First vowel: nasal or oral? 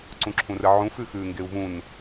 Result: nasal